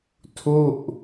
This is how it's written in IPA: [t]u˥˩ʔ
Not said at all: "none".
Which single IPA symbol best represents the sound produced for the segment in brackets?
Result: tʰ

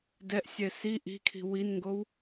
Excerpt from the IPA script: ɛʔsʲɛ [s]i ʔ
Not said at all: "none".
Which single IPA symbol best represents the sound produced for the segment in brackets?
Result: s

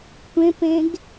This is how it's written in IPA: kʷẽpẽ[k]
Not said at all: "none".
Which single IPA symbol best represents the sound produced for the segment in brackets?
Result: ɡ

